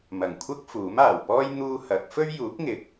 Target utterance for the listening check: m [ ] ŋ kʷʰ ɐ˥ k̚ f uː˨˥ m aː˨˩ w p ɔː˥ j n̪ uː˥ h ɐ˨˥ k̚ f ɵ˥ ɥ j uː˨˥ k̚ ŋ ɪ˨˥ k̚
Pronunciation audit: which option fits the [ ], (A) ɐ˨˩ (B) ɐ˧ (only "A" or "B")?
A